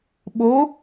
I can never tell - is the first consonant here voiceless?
no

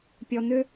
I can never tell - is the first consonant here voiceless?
yes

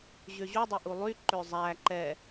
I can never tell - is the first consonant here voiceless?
no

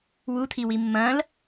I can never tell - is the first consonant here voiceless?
no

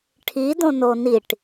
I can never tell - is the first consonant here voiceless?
yes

